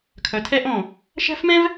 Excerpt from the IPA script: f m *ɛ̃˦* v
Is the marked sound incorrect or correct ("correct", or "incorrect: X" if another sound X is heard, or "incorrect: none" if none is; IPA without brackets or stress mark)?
correct